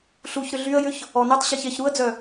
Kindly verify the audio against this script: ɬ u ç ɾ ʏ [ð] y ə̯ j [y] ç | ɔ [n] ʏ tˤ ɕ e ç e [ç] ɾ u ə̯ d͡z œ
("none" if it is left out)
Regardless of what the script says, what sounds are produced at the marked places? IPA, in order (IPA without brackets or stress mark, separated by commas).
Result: ɮ, ʏ, n, ç